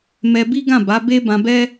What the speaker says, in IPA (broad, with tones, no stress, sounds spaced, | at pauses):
m ɛ˧ b i˦ ɡ ã˦˨ b a˨˦ b e˦ b ã˧ b ɛ˦